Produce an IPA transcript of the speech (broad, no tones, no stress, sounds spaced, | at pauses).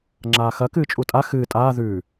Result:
ŋ͡ǁ aː x ɐ k ɨː t͡ʃʼ u tʼ a x ɨː tʼ aː ð ʉː